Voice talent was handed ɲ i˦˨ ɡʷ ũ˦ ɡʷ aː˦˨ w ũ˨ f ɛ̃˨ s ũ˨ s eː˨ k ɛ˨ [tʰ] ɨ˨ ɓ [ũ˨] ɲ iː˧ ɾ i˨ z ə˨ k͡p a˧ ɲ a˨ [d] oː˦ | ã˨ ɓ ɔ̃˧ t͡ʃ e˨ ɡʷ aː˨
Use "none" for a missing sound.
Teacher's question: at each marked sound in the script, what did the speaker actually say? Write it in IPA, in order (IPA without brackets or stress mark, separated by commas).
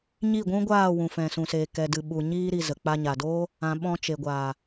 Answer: d, u˨, d